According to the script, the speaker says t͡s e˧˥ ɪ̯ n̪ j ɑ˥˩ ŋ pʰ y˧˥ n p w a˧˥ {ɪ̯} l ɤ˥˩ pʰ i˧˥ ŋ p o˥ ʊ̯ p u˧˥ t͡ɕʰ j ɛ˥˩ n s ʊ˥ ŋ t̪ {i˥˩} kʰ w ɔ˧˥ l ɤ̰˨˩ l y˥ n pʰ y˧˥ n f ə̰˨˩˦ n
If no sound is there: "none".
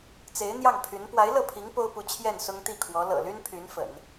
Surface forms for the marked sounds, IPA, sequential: ɪ̯, i˥˩

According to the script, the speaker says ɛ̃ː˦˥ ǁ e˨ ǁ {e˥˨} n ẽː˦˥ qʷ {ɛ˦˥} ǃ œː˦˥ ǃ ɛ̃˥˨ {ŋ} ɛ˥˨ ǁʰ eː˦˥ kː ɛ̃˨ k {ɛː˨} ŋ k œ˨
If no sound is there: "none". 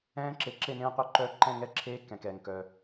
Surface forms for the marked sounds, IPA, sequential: e˥˨, œ˦˥, ŋ, ɛː˨

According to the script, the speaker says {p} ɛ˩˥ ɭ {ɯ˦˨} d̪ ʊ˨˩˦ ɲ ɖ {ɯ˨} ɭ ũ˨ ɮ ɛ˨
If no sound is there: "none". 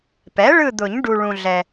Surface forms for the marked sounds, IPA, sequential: p, ɯ˦˨, u˨

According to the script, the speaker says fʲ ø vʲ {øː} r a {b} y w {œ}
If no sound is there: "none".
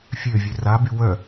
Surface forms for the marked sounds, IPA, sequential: ø, b, œ

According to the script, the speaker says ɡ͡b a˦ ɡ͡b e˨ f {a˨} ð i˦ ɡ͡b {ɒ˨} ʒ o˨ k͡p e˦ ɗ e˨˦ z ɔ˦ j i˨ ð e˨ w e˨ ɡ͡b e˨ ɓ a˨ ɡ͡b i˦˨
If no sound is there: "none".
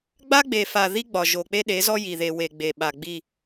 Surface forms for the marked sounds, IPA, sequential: a˨, ɒ˨

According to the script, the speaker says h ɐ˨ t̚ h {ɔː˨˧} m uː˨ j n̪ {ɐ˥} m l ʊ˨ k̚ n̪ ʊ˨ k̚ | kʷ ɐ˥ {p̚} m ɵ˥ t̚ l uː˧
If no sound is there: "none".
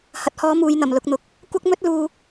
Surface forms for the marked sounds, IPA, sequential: ɔː˨˧, ɐ˨˩, k̚

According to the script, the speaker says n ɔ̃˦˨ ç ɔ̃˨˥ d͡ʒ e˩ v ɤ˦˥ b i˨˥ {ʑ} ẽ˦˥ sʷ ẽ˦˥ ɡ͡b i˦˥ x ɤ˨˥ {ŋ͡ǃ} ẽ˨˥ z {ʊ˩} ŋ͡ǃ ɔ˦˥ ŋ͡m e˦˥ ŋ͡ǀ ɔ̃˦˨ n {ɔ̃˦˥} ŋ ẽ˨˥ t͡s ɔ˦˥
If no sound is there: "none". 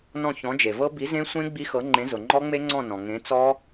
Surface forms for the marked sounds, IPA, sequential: z, ŋ͡ǃ, ʊ˩, ɔ̃˩

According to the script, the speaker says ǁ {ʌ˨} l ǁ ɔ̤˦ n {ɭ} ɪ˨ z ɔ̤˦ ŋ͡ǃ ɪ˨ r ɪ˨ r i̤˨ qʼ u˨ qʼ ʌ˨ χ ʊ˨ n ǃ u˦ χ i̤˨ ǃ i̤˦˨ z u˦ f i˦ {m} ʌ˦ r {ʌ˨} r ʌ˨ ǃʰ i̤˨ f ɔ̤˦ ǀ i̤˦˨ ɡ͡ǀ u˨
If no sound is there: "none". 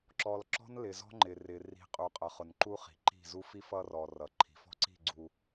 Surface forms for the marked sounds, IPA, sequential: ɔ˨, l, f, ɔ˨

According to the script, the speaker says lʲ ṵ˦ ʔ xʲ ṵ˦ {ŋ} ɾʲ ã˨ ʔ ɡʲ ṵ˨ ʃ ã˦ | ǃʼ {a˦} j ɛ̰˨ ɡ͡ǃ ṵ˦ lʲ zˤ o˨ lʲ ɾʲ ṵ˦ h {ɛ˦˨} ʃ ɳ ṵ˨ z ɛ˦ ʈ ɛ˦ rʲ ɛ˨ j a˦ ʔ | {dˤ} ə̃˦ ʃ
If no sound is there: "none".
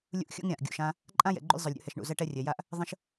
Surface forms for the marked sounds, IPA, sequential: ŋ, ã˦, ɛ˨, ðˤ

